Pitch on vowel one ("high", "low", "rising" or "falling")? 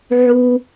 low